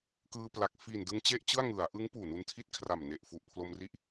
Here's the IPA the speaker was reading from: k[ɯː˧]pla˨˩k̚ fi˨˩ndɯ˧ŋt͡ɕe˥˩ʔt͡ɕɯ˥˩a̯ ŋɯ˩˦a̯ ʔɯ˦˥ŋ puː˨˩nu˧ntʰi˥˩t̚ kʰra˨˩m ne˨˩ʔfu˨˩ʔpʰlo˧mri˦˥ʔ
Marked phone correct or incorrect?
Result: correct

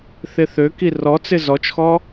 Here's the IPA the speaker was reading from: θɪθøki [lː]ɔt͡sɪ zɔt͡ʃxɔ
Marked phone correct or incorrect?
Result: incorrect: r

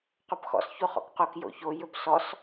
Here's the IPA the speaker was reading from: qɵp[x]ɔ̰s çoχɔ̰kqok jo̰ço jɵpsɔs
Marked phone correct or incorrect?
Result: correct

